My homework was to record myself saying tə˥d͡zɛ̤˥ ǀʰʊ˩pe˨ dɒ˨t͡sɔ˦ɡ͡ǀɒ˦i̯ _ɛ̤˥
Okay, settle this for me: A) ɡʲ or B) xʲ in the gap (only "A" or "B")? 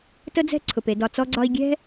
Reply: A